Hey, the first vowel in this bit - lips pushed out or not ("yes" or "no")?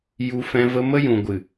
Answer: yes